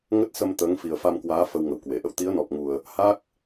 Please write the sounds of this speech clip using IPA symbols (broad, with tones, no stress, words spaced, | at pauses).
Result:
ŋə˦˥t̚sə˧m t̪əː˨˦ŋfi˨˩ə̯fa˧mkwaː˨˦ fə˧wŋə˧˩wkwe˧˩ʔə̰˧˨w t̪i˨˦ə̯nɔ˨˩p̚ŋu˨˩ə̯ | ha˦˥k̚